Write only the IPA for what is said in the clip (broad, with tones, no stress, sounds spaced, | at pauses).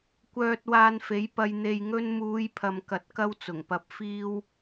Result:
kʷ œː˧ t̚ w aː˧ n f e˨˥ j p ɐ˧ j n̪ e˧ j ŋ ɵ˥ n m uː˨˧ j pʰ ɐ˨ m k ɐ˧ t̚ k ɐ˥ w t͡s ʊ˨˩ ŋ p ɐ˧ p̚ f iː˥ w